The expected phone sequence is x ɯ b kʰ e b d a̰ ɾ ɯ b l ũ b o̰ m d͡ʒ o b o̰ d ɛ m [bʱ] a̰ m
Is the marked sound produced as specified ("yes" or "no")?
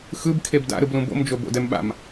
no